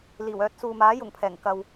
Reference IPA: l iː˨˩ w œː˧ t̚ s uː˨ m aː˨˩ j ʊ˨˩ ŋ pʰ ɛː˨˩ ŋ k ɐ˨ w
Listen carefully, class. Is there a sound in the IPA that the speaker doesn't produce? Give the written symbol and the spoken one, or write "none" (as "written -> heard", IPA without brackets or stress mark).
aː˨˩ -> aː˨˥